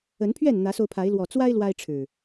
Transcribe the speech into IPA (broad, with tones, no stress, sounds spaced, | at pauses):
ə˨˦ n pʰ ɥ ɛ˥˨ n n̪ ä˨˦ s o˧ ʊ̯ pʰ a˨˦ ɪ̯ l w ɔ˨˩ t͡s w a˦ ɪ̯ l w a˦ ɪ̯ ʈ͡ʂʰ ɻ̩˨˩